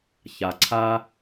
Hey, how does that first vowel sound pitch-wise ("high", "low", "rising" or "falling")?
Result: low